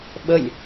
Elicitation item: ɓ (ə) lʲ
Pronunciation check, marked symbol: correct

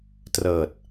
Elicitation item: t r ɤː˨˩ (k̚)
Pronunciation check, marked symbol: incorrect: t̚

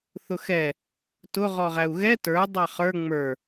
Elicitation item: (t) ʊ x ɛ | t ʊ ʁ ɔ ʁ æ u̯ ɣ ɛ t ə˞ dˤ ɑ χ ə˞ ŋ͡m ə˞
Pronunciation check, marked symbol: incorrect: θ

